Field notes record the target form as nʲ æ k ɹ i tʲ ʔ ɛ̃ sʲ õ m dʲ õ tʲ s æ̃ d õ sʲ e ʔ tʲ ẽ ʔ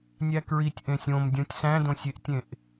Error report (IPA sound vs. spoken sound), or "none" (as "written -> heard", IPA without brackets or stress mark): ɛ̃ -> ẽ